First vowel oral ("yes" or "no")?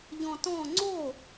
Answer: no